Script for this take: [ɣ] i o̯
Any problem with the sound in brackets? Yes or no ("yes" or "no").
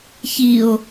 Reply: yes